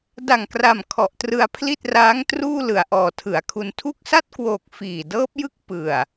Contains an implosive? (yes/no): no